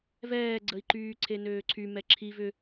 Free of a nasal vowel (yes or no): yes